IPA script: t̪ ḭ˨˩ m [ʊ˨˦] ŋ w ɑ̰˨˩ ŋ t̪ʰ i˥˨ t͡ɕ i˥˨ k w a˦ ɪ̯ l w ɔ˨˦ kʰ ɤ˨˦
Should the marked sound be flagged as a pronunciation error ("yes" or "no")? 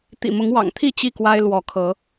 no